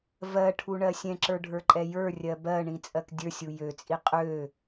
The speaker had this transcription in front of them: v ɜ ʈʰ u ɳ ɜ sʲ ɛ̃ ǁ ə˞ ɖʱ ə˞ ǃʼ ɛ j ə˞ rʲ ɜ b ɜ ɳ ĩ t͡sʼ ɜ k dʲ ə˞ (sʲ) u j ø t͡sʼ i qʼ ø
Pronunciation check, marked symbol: correct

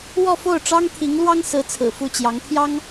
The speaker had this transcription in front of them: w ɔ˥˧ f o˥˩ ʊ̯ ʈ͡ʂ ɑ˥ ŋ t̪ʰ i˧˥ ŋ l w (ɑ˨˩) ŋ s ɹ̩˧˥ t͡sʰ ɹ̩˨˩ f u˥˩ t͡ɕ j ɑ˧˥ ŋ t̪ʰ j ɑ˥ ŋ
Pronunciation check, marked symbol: incorrect: ɑ˥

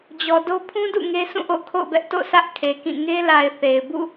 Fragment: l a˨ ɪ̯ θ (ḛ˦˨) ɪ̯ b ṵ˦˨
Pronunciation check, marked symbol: incorrect: e˨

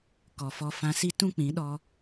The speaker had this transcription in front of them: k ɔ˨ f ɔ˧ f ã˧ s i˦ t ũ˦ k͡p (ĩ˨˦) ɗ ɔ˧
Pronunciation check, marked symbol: correct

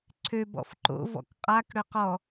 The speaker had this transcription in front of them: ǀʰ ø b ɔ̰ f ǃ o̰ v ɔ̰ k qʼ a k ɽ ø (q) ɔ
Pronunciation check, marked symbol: correct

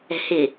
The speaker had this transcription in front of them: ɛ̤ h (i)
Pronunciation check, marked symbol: incorrect: ɪ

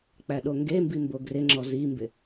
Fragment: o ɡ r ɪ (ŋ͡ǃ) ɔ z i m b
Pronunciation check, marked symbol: incorrect: ŋ͡ǁ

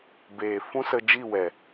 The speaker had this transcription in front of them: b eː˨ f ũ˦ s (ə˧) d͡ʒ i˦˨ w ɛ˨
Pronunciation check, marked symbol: correct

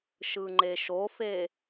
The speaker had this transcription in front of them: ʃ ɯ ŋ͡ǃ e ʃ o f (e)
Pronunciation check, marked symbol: correct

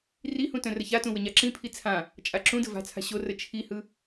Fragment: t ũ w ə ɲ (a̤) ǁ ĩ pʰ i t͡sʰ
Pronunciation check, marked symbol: incorrect: a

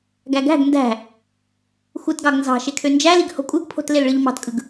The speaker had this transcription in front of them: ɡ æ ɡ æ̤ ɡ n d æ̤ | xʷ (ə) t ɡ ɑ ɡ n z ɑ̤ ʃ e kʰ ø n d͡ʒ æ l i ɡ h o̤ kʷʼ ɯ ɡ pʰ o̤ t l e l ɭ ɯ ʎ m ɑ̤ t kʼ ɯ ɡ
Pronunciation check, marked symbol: incorrect: ɯ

